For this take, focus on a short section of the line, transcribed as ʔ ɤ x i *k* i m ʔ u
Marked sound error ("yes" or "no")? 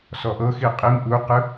yes